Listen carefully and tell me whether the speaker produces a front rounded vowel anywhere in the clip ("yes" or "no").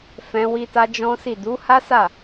no